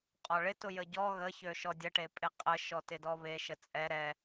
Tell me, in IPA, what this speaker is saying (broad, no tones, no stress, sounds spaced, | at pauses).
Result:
qʼ ɔ ɭ ɪ t ʊ j ə ɟ ɔ ɣ ə ç ø ʃ ɔ dʲ ə ʈ e pʼ ɪ qʼ ə ʃ ɔ t ɪ d ɔ β e ʃ ə t͡sʼ ɛ ɾ ɛ